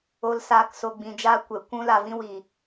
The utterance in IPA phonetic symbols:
o˧ l s aː˧ k s o˧ ɡ͡b ĩ˧ d͡ʒ aː˦ kʷ ɛ˨ kʷ ũ˦ l a˧ v ĩ˦ w iː˨

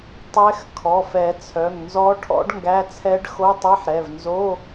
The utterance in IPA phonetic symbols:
tˤ ɛ˧˥ x kʰ ɔ˩˧˩ f ɛ˨˩˦ t͡sʰ œ˩˧˩ ŋ n z ɔ˧˥ ʈʰ ɔ̰˧˥ ɖ ŋ ɡ æ˧˥˧ t͡sʰ ɛ˧˥ ɖ x o˧˥˧ tˤ ɛ˧˥˧ ħ ɾ ɛ˩˧˩ v n z o˧˥˧

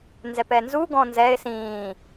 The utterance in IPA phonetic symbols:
n z ɛ p ɛ n z u ɡ ɔ̃ n z ɛ ɪ̯ s ĩː

